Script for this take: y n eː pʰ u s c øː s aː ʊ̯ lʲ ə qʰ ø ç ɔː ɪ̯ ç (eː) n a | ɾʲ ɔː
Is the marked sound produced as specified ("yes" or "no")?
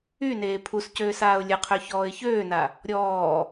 no